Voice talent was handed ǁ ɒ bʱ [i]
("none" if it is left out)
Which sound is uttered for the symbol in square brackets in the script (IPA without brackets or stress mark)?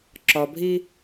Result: i